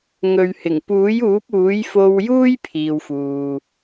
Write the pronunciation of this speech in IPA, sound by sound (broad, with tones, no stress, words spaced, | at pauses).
ŋɵ˨ɥhɪ˨˩ŋ puː˨˥juː˨˥p̚uː˨˥j fo˧wjuː˥j pʰiː˧wfuː˨